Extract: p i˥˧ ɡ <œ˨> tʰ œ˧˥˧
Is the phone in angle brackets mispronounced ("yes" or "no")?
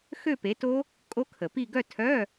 yes